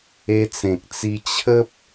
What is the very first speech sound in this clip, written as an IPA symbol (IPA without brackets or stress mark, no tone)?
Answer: e